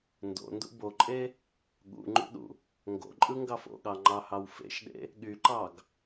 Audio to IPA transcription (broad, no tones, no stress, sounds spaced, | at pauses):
n d o̰ n d ṵ b o ǃʼ e | ɠ ṵ ŋ͡ǃ ṵ ɗ ṵ | ŋ ɡ o̰ ǃʼ ɯ ŋ ɡ ɑ f o̰ ɠ ɑ ŋ͡ǃ ɑ h ɑ w f ḛ ʃ ɗ ḛ | ɠ y ǃ ɑ ɡ